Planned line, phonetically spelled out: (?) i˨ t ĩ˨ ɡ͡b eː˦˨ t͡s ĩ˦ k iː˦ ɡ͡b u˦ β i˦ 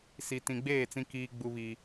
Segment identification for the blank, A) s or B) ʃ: A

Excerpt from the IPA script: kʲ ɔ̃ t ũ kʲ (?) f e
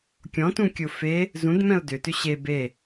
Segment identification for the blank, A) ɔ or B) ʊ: B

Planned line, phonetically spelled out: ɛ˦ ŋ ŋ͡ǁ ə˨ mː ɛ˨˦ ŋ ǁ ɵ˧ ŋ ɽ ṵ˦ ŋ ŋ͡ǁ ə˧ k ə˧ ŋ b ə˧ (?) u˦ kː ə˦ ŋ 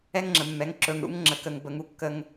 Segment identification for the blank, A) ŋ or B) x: A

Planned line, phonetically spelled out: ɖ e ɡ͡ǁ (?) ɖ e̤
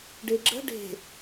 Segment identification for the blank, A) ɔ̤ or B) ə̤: B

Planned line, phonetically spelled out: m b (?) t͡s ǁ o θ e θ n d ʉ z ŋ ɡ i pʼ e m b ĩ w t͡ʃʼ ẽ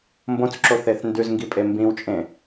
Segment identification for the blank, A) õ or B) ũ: A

